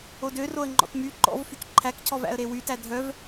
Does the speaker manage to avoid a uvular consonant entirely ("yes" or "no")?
yes